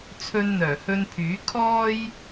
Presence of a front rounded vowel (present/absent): present